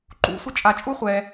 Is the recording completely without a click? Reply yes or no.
no